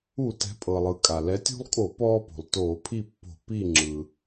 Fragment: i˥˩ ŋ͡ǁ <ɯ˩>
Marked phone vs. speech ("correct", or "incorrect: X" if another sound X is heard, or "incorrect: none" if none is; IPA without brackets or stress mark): correct